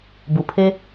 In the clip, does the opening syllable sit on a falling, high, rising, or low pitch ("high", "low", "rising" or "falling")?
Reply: low